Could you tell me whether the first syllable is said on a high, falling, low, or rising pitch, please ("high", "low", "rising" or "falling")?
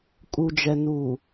low